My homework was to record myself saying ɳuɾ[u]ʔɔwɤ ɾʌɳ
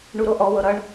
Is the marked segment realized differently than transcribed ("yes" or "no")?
yes